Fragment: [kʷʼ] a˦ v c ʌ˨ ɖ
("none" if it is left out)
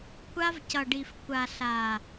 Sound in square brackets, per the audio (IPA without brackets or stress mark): kʷ